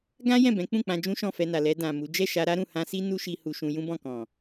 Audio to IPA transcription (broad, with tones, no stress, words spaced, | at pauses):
ɡã˦ jɛ̃˦˨bɛ̃˨˦k͡pũ˦˨k͡pã˧ d͡ʒũ˦ʃɔ̃˦˨fɛ˧na˨ lɛ˧ dã˨ mu˨˦ d͡ʒɛ˦˨ʃa˧ɾa˦ɾũ˦˨ hã˧si˦ nu˦ʃi˧ hu˧ʃũ˧ jũ˦bɔ̃˦˨kɔ̃˨